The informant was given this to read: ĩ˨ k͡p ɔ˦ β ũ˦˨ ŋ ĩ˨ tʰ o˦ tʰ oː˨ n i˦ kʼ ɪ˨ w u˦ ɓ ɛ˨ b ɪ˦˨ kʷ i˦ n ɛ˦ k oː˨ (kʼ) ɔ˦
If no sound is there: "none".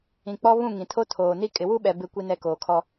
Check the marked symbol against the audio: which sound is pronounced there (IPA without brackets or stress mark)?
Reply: kʰ